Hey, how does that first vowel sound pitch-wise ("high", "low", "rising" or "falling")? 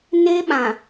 high